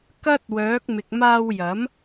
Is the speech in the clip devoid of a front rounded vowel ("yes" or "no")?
no